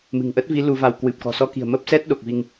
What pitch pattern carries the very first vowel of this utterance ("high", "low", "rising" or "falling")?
low